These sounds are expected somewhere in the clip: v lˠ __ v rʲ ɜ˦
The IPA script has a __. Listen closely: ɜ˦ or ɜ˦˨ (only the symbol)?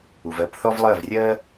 ɜ˦˨